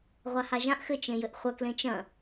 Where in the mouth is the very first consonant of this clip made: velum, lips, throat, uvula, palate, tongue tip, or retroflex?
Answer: uvula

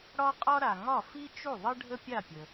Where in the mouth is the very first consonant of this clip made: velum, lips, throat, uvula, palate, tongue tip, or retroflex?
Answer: retroflex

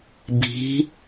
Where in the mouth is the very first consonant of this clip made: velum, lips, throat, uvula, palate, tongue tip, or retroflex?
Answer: lips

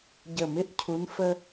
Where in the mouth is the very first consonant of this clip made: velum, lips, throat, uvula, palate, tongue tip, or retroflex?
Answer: palate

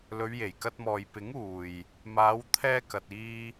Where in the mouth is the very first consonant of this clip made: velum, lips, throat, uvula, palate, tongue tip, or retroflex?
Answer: tongue tip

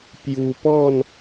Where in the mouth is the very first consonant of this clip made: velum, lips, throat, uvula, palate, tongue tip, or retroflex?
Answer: lips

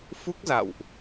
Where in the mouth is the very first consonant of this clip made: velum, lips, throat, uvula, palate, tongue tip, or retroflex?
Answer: lips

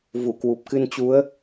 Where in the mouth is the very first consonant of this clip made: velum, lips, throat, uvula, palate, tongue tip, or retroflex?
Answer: lips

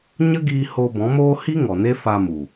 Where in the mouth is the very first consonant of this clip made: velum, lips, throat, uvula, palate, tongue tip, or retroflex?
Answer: palate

